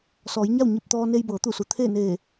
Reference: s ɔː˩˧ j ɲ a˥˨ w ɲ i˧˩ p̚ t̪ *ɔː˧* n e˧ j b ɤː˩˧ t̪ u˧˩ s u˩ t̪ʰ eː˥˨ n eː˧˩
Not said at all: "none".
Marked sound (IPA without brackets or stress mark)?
ɔː˧